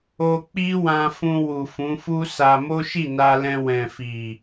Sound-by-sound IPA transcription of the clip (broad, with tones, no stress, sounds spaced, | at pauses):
o˧ k͡p i˦ w ã˧ f ũ˧ w u˨ f ũ˨˦ f u˦ s a˧ m o˦ ʃ i˦˨ n a˧ l ɛ̃˧ w ɛ̃˨ f i˨